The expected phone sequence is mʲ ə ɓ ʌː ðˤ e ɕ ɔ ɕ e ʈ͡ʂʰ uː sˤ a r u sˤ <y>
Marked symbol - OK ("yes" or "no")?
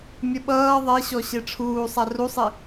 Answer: no